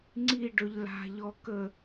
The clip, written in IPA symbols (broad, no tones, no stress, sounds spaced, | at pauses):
ŋ͡ǀ i ɖ ɵ ʎ l a̤ ʎ ɔ k ə